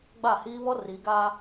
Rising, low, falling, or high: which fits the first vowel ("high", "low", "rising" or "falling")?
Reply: falling